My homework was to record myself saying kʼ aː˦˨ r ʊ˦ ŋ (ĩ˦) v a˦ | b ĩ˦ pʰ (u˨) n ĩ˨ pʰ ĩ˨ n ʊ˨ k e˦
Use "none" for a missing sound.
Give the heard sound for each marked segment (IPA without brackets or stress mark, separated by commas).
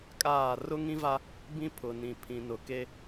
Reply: ĩ˦, ʊ˨